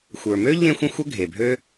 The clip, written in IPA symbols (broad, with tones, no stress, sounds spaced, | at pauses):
xʷ ə˞˩ m ø˥ ʎ ẽ˧ xʷ ə̃˧ xʷ ə˥ ɡʱ e˩ bʱ ø˥